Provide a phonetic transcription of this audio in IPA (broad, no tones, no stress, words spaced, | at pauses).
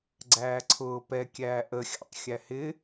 ɡ͡ǀæːǀʰʊː pɛkʲæː ʔəxʲɑ̰tˤ xʲæhɪ